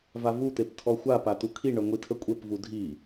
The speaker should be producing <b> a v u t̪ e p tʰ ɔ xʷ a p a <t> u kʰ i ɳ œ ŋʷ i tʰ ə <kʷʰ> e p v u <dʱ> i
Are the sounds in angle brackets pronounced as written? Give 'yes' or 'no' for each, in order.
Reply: no, yes, no, yes

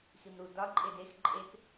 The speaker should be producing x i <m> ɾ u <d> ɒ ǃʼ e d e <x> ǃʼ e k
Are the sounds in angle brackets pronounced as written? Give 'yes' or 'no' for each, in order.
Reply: yes, yes, yes

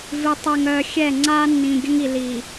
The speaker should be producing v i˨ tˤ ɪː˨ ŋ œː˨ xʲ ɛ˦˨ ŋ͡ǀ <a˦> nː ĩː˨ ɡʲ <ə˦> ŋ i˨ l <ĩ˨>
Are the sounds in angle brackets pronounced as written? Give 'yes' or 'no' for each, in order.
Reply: no, yes, no

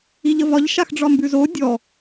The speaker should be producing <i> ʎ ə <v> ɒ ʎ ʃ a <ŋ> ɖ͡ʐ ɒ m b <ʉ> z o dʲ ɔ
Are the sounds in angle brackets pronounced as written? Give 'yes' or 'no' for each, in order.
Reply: yes, yes, no, yes

